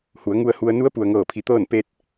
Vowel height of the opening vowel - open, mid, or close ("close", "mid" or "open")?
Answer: close